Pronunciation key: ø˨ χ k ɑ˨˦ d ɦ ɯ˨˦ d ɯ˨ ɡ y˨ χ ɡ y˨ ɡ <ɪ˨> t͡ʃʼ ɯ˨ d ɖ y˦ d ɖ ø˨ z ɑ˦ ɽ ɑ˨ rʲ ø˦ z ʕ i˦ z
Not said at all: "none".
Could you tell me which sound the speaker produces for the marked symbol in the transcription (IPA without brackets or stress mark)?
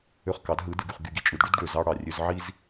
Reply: i˨